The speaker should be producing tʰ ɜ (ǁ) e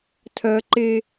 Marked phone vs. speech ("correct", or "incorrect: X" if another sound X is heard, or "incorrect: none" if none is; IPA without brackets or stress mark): incorrect: ǃ